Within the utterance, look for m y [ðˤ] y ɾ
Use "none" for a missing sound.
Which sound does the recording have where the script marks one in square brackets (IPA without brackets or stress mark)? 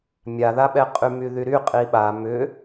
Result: ð